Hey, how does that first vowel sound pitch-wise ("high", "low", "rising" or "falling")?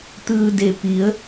low